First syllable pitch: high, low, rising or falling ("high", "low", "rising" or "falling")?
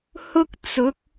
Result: high